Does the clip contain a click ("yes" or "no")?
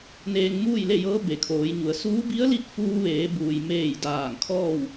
no